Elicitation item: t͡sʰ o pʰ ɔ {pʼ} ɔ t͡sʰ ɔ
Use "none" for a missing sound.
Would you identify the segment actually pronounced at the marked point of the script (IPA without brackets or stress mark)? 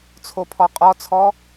qʼ